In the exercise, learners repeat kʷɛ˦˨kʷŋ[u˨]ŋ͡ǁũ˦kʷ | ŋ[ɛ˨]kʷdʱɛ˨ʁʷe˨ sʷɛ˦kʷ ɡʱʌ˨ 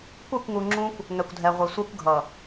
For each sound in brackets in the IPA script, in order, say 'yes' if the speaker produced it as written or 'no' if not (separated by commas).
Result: yes, yes